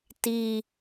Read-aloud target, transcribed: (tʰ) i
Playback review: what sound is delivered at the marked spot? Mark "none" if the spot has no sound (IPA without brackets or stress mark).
t